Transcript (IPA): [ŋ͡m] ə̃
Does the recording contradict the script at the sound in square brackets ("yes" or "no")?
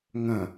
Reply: yes